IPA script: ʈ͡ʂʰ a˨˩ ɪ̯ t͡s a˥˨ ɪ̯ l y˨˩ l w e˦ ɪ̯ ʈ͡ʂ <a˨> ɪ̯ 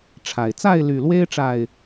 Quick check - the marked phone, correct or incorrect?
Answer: correct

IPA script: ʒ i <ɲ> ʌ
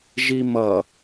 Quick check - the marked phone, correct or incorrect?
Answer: incorrect: m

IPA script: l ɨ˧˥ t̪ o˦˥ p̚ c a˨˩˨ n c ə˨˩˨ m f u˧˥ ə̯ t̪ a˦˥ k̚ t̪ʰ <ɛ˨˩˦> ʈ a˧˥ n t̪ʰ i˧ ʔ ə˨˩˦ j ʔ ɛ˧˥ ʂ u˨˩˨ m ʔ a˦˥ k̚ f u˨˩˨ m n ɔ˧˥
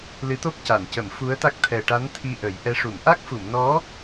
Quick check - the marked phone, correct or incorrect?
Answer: incorrect: ɛ˨˩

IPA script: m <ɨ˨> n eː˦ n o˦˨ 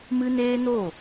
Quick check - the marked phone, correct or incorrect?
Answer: incorrect: ɨ˦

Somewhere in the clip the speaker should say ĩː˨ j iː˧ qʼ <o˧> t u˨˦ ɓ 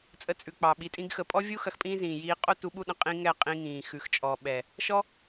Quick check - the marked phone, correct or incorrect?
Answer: incorrect: o˦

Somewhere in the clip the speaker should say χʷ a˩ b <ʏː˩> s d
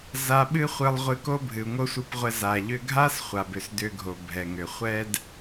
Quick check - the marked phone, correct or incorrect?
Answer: incorrect: ʏ˩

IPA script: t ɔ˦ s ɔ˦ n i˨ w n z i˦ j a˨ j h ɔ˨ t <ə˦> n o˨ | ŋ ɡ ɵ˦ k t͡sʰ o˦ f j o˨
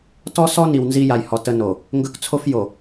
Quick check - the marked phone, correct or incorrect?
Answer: correct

